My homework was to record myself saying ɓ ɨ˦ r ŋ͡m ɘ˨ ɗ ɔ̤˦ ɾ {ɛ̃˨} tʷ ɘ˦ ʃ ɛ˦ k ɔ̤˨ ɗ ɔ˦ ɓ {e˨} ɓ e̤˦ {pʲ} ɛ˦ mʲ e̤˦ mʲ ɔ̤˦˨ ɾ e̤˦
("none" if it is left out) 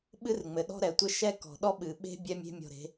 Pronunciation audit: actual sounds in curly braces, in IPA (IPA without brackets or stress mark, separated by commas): ɛ˨, ɨ˨, bʲ